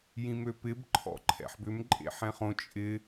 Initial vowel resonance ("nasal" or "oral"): nasal